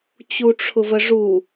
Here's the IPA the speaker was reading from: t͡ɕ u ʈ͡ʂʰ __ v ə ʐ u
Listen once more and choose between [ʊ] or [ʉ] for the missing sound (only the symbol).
ʊ